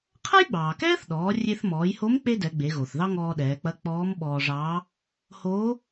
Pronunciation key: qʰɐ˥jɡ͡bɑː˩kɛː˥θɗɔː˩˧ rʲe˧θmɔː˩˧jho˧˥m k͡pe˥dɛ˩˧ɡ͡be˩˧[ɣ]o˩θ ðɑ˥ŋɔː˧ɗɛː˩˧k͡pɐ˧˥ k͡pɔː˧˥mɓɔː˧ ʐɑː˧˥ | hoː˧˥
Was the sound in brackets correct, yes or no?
yes